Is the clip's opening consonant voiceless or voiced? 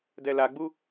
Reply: voiced